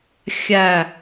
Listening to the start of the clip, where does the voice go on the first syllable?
falling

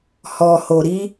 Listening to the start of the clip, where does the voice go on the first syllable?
low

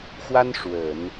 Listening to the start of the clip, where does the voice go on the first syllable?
high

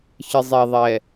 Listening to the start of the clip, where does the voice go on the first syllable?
low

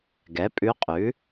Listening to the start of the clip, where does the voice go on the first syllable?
rising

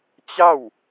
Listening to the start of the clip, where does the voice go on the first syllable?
falling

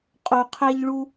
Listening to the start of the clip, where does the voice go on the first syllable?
low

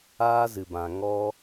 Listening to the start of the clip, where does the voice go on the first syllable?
high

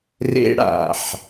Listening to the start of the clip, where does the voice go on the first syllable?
high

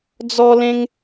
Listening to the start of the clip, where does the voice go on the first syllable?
high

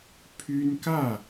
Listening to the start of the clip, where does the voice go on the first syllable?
high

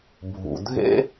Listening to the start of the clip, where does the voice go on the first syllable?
low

